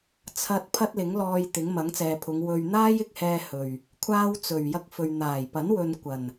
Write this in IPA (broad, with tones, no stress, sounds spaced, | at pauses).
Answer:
t͡sʰ ɐ˧ t̚ pʰ ɐ˥ t̚ l ɪ˨˥ ŋ l ɔː˧ j t̪ ɪ˨˥ ŋ m ɐ˨˥ ŋ t͡s ɛː˨ pʰ ʊ˨˧ ŋ w ɵ˨ ɥ n̪ aː˥ j ɪ˧ k̚ h ɛː˧ h ɵ˨˩ ɥ | kʷʰ aː˥ w t͡s ɵ˨˩ ɥ j ɐ˥ k̚ f ɵ˨ ɥ n̪ aː˨˩ j p ɐ˨˥ n w ɵ˨ n kʷ ɐ˨˩ n